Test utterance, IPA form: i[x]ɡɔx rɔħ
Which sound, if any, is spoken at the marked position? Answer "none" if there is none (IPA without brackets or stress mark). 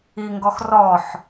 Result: ŋ